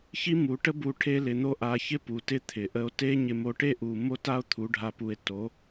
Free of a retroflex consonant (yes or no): no